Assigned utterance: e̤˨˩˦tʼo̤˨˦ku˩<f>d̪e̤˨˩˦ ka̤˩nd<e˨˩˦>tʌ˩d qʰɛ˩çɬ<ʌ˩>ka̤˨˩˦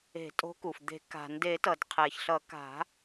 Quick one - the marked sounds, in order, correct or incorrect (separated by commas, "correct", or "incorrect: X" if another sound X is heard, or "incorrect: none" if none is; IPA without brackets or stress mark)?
correct, correct, incorrect: ʌ˨˩˦